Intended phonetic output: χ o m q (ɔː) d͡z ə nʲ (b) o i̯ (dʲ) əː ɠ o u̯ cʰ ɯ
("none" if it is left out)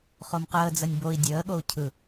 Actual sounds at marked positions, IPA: əː, b, dʲ

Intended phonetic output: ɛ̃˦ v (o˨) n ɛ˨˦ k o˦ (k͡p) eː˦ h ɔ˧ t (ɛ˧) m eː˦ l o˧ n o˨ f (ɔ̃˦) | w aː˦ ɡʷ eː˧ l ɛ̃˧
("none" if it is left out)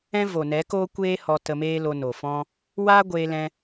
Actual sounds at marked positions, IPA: o˨, kʷ, ə˧, ɔ̃˦

